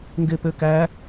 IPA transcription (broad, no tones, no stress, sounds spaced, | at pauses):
ŋ ɡ e p ø k æ